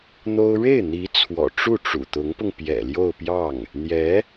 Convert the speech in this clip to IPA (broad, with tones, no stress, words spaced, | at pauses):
n̪o˥ʊ̯ ɻe˥˩ɪ̯n̪i˧˥ t͡sʰwɔ̰˨˩ ʈ͡ʂu˥˩ʈ͡ʂṵ˨˩t̪ʊ˧˥ŋpʊ˧ŋ pjɛ̰˨˩ljo˥˧ʊ̯pjɑ˥˩ŋ | n̪jɛ˧˥